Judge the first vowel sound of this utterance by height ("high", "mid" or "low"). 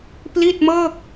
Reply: high